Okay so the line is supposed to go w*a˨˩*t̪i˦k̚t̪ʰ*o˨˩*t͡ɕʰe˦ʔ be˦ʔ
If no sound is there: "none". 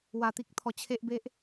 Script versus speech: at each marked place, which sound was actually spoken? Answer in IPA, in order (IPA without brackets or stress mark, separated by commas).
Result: a˨˩, ɔ˨˩